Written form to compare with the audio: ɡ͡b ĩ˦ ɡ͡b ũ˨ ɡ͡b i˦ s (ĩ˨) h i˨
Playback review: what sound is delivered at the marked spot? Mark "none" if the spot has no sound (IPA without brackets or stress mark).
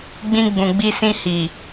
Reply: ĩ˦